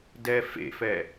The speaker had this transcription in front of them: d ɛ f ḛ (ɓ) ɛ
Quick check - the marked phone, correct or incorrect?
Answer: incorrect